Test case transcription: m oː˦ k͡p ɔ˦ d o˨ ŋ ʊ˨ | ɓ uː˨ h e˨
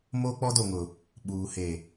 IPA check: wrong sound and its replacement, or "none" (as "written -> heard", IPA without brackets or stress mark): none